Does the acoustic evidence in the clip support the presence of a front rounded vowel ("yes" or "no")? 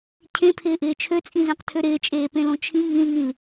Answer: yes